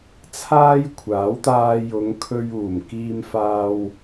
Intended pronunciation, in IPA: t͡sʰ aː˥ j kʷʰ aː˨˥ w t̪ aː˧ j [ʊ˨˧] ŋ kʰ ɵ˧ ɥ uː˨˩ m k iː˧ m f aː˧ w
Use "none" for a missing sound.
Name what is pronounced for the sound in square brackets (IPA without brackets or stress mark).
ʊ˨˧